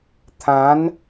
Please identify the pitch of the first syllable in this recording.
rising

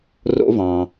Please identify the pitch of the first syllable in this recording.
high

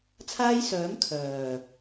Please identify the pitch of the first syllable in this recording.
high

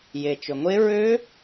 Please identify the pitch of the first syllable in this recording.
low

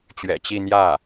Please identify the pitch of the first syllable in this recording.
low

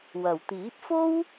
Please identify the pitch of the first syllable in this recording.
low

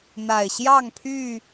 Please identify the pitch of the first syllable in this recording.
low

